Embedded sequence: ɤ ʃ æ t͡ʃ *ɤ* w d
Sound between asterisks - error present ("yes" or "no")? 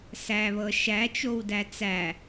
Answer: yes